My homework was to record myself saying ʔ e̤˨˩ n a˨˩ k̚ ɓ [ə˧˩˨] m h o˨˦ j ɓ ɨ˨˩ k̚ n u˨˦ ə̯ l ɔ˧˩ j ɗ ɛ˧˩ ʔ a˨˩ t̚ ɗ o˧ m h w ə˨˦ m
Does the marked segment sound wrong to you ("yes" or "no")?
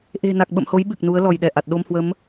yes